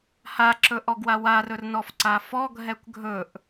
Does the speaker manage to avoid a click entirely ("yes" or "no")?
no